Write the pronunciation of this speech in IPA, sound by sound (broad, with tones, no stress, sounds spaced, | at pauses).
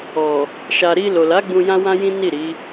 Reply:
ɔ˨ | ʃ a˨ ɾ i˧ l o˨ l a˨˦ ɡ͡b ũ˧ j ã˦ w ã˦ j ĩ˦ n i˦˨ ɾ i˨˦